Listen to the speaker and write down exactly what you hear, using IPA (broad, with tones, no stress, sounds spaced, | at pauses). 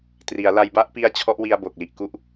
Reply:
t r i˩˦ a̯ l a˧ j b a˥˩ ʔ p i˦˥ a̯ t͡ɕʰ ɔ˦˥ ʔ w i˧ a̯ b o˨˩ k̚ l i˨˩ ʔ k u˥˩ ʔ